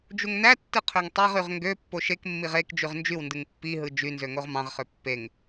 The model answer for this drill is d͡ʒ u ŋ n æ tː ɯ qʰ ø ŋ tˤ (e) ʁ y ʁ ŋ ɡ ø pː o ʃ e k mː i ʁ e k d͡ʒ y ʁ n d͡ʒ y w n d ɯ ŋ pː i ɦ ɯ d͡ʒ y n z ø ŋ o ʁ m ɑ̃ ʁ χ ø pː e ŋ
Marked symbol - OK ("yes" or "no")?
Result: yes